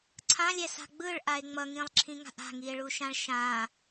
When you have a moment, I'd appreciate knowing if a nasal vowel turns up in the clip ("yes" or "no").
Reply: yes